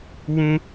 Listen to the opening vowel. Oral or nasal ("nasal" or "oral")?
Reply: nasal